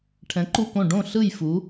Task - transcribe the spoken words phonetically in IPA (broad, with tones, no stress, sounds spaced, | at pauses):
ʈʰ ɛ̃˩˧ ǃ u˧˩ k õ˧˩ ɖ õ˧˩ ɬ ɯ˧˩ j f u˩˧